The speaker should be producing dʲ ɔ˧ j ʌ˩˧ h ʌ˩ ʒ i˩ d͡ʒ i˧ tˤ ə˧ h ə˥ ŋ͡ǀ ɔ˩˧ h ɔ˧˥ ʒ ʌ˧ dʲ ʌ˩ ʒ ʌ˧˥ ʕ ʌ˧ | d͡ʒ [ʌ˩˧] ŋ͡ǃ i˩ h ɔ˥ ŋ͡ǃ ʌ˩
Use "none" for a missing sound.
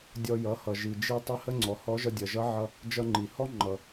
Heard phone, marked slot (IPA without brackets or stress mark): ʌ˧